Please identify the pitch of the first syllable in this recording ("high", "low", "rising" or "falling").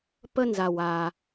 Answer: high